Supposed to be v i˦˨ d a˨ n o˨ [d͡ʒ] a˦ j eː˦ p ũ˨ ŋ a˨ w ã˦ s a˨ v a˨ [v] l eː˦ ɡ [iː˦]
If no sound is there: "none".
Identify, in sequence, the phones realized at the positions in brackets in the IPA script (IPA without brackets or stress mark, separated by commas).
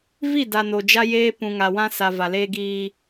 d͡ʒ, none, iː˦